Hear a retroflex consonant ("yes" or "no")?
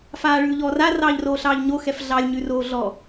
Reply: yes